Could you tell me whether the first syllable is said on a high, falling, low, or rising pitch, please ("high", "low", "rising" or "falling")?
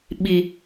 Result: low